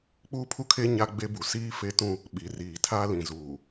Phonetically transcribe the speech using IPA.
k͡puː˦pʰu˦kʰe˦ ɲa˦ɡ͡be˦bu˨ siː˦fe˦tũ˦ | ɓi˨riː˨tʰa˦ lĩ˨zuː˨

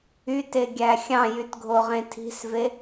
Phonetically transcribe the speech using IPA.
yteɡʲæ xʲɑ̃jytɡʱoʁẽ tʰi̤sve

